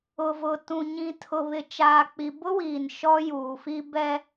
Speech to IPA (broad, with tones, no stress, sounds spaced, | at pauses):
ʊ˨ v ʊ˨ t ũ˨ ɲ ĩ˨ tʰ ʊ˨ β ɪ˨ t͡ʃ aː˨ k͡p i˨ b ʊ˦ w iː˨ n ʃ ɔ˦ j uː˨ f i˦ b ɛ˦